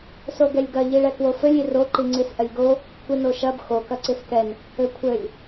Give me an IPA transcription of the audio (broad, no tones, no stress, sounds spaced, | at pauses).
s o ɡ ɛ lʲ ɡ ɐ ʎ i ɭ ɛ k w o f ɘ lʲ i r o ǃ i ŋ͡ǀ i s ʔ ɐ lʲ ɡ o | kʷ i n o ʃ ɐ b x o k ɐ ǀ i s k ɛ n | ɘ kʷʰ ɘ lʲ